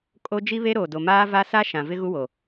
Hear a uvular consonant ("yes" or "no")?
no